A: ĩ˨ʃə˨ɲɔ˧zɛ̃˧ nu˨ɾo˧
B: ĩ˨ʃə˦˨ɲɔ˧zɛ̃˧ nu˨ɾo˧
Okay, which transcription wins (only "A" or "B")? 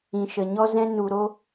A